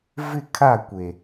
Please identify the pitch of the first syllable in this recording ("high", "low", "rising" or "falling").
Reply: falling